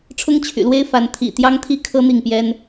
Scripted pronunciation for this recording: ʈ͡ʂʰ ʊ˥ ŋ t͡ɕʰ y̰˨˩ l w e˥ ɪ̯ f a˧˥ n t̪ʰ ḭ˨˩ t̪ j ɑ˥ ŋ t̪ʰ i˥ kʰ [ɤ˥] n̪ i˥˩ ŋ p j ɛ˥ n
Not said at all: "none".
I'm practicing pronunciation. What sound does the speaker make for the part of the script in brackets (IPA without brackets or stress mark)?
ɤ˥